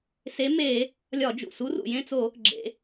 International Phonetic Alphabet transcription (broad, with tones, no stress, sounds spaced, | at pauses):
s e˨˥ m e˧˩˧ | lʲ ɒ˧˩˧ d͡ʒ ṵ˩ s u˨˥ r ṵ˩ j ẽ˦˨ t͡s o˧˩˧ | ɡ͡ǁ ḛ˩˧